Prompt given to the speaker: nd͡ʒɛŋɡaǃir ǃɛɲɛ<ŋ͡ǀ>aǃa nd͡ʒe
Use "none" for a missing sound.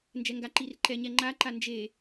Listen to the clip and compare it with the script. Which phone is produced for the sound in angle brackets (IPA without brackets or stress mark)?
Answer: ŋ͡ǃ